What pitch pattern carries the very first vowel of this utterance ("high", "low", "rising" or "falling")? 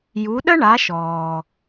rising